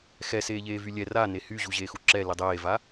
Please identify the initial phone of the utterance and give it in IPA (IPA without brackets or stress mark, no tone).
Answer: x